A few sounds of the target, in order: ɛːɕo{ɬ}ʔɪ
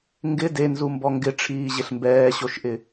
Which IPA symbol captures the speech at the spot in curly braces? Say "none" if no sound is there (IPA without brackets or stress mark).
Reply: ʃ